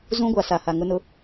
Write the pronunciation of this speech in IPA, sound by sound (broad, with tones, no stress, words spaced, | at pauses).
zũ˦ɡʷa˨ sa˨ha˨ŋʊ˦nʊ˦